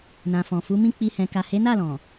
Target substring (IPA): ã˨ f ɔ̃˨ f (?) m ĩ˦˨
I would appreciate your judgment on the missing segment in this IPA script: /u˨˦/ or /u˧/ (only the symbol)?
u˨˦